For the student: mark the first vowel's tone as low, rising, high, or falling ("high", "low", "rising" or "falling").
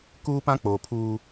high